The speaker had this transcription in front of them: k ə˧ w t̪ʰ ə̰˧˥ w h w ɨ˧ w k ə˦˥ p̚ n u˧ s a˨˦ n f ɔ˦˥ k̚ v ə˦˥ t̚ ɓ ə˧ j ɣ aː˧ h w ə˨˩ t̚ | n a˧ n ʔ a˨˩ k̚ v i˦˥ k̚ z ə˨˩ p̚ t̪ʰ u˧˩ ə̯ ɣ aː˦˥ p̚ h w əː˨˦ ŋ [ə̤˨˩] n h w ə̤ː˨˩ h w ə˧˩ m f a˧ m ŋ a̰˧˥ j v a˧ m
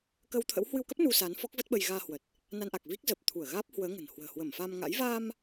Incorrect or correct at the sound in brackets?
correct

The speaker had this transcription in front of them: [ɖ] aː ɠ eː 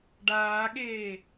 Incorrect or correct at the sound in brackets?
correct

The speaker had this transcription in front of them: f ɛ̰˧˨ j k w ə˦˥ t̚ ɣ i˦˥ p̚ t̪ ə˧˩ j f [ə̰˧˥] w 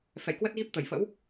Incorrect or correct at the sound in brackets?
correct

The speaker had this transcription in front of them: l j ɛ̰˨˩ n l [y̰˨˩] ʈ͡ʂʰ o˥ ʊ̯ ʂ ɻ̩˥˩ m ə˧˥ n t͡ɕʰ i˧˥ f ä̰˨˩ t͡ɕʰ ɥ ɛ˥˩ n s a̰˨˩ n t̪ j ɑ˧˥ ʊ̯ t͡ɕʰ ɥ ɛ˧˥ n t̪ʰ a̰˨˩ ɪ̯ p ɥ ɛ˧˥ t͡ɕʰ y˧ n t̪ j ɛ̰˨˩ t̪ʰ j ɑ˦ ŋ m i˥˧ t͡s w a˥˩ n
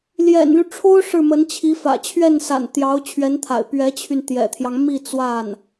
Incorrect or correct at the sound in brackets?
incorrect: y˦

